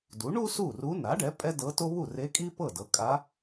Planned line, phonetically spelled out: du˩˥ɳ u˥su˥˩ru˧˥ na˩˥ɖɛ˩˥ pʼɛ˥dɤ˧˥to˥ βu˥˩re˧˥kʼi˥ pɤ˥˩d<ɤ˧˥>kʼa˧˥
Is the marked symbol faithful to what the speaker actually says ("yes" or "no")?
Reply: no